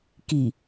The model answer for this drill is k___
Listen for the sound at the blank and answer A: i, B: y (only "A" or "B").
A